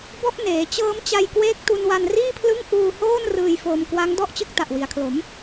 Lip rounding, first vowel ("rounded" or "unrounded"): rounded